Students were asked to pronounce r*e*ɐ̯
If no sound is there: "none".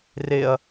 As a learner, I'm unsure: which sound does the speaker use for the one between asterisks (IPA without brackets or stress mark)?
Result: e